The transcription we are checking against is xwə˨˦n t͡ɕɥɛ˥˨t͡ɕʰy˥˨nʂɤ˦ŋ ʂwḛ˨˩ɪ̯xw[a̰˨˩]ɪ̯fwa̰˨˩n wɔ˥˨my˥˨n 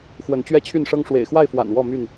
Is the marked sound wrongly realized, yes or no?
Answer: yes